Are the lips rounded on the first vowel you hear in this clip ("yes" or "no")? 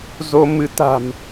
yes